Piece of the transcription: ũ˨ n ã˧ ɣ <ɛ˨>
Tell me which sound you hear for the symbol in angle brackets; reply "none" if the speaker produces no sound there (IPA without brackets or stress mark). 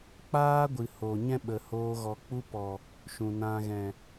ɛ̃˨